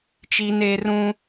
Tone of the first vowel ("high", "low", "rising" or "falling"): high